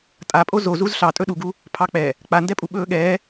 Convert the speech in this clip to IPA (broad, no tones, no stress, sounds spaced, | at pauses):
tʼ a pʼ o z o z u z ɬ ɑ tʼ ɵ ɗ u ɡ u | pʰ ɑ k͡p ɛ | k͡p a n d ɛ pʼ u ɓ ɵː ɠ ɛː